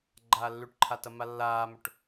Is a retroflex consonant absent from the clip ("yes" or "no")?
no